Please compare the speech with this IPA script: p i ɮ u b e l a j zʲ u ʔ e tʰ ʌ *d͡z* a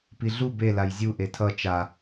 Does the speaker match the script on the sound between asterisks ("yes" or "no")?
no